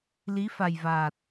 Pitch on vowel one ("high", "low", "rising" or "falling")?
rising